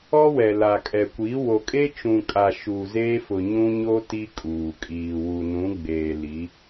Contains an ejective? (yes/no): yes